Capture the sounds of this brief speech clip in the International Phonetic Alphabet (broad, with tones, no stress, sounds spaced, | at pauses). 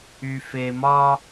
y˨ f e˨ m ɒ˦